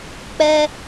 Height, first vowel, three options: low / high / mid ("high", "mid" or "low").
mid